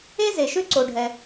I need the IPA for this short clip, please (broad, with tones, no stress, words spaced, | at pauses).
e˥ze˩ʃʏ˥ ǀo˩ɖʱɛ˩